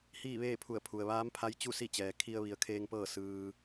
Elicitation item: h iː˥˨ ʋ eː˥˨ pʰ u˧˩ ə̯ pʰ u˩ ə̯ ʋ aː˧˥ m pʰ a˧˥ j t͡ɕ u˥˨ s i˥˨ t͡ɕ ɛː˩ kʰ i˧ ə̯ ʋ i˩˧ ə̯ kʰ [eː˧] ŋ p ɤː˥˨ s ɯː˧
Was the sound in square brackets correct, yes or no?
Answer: yes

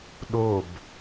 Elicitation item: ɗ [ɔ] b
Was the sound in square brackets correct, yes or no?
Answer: no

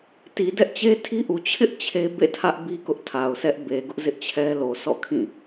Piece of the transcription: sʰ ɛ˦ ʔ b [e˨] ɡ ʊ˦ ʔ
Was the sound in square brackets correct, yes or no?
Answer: yes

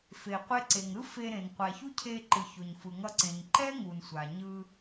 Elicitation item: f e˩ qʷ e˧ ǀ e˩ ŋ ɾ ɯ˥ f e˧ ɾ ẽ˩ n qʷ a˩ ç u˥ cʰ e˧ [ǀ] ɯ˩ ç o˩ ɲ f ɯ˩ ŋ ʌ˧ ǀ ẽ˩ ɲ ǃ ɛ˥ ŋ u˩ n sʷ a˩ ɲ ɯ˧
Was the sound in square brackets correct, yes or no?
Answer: no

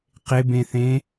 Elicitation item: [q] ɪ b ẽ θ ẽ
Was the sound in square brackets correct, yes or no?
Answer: yes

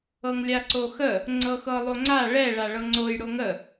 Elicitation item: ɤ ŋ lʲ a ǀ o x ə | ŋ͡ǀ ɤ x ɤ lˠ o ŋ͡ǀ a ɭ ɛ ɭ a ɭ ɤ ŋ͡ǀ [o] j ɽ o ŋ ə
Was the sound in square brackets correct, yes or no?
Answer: yes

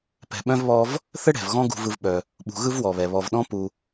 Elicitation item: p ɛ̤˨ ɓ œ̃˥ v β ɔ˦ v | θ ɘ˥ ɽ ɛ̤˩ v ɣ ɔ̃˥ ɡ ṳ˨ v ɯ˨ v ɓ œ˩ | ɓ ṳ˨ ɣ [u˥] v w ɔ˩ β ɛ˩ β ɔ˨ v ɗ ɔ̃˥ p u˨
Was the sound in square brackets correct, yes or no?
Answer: no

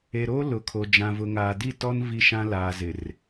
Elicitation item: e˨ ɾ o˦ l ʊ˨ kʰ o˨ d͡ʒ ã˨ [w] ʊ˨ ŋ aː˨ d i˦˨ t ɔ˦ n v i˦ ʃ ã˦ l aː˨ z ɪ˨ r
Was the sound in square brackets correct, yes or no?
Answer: no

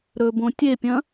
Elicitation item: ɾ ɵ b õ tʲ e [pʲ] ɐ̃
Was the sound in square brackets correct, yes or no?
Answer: yes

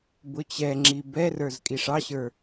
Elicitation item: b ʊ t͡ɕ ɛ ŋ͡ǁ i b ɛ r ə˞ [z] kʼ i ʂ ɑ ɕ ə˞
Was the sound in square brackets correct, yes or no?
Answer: yes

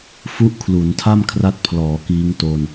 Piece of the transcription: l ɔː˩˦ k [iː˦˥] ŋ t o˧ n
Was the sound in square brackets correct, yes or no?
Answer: yes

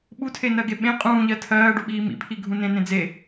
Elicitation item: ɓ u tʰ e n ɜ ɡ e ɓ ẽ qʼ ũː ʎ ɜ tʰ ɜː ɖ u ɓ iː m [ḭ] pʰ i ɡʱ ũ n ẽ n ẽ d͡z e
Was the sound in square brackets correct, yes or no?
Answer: yes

